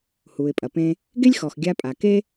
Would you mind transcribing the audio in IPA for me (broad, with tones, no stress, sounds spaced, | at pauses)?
h u˩ ɪ̯ pʼ ɐ˩ p ẽ˧ | ɡ e˥ lʲ x ɔ˩ x ɡʲ a˧ pʼ a˩ k e˥